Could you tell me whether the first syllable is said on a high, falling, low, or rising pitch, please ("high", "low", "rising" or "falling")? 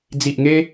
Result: low